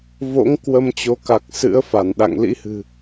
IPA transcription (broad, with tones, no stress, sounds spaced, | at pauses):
v o̰˧˥ ŋ k w ə˧ m t͡ɕ o˨˦ k a˨˩ k̚ s ɨ̰˧˥ ə̯ f a˧˩ n ɗ a̰˧˨ ŋ l ḭ˧˥ h ɨ̤˨˩